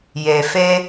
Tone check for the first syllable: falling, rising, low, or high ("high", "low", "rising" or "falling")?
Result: low